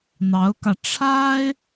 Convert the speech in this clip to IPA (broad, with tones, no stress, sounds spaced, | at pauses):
n̪ ɑ˧˥ ʊ̯ k ä˧ ʈ͡ʂʰ a˥ ɪ̯